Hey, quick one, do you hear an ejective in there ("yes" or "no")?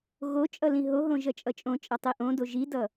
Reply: yes